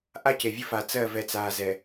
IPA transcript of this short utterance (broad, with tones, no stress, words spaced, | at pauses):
ʔa˦ce˨vʲə˦fa˨ t͡sɜ˦˨vɛ˨t͡saː˨zɛ˨